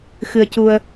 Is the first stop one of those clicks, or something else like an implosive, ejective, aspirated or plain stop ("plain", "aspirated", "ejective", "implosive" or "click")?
plain